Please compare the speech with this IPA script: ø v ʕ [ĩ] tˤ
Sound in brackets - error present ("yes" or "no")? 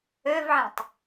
no